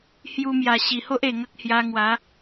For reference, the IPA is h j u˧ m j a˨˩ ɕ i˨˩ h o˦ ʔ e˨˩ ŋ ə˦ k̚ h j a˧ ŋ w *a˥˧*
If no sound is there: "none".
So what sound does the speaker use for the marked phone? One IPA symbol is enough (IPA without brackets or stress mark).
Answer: a˨˦